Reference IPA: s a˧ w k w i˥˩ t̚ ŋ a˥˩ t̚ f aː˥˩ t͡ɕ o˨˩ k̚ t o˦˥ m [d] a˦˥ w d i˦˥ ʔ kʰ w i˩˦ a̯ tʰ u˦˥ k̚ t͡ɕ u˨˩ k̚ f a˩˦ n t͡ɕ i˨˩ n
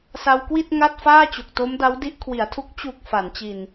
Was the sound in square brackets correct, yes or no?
yes